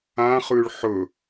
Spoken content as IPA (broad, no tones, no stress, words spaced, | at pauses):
ãχʉɭ ħɵ